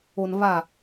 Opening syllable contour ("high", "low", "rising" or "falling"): low